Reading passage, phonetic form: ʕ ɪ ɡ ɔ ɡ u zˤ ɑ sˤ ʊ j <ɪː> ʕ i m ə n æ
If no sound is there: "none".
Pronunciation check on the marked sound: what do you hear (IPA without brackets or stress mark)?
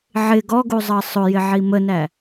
ɪ